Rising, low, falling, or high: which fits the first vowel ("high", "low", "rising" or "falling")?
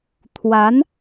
rising